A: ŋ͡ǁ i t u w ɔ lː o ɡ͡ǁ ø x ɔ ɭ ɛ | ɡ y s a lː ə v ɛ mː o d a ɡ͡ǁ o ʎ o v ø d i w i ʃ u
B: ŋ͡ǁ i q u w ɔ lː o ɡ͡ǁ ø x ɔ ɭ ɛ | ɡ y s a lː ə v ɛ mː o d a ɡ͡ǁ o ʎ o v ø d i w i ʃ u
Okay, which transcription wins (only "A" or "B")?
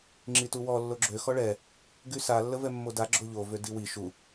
A